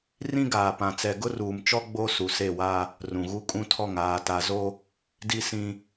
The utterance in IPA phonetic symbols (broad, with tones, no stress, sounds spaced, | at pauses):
r ĩ˦ ɡ aː˨ p ã˨ t͡s ɛ˨ ɡ ʊ˦ r uː˨ m t͡ʃ ɔ˦ ɡ͡b o˦ s u˨ s e˦˨ w a˦ | r ũ˨ ɣ u˦ kʼ ũ˦ tʰ ɔ˦˨ ŋ aː˨ t a˨ z o˦ | d i˦ s ĩ˦